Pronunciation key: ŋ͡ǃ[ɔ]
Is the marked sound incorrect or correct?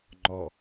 correct